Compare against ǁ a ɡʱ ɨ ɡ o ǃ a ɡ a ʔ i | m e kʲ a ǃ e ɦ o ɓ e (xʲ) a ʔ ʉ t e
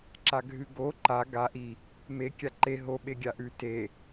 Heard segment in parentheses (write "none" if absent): ɡʲ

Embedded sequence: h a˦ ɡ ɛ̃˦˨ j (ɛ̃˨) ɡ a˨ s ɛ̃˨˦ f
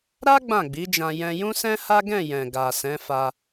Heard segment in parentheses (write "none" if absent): ɛ̃˨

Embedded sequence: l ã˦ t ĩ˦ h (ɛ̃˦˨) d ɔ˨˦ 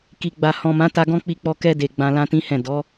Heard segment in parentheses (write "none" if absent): ɛ̃˦˨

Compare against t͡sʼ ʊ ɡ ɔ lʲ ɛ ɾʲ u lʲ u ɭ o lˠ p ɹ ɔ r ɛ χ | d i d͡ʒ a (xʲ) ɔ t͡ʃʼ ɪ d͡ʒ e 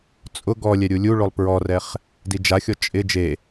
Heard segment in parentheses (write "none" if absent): xʲ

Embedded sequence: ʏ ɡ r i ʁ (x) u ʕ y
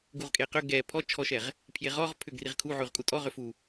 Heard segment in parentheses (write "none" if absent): kʰ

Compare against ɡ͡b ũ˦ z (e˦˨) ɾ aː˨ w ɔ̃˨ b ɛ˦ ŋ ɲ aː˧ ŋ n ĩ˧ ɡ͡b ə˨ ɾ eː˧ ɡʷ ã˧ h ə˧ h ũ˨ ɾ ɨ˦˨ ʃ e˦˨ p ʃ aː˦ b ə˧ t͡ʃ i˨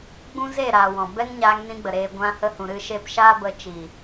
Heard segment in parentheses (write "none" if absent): e˦˨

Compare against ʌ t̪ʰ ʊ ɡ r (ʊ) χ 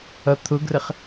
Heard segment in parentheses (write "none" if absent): ə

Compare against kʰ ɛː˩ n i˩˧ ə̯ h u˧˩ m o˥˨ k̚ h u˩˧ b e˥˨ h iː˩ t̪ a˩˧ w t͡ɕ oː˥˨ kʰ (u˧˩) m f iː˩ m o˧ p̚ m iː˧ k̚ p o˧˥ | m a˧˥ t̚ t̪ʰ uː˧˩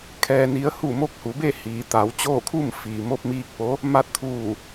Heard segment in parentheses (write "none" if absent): u˥˨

